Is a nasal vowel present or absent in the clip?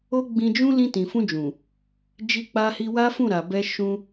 present